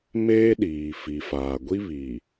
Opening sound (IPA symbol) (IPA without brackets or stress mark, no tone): m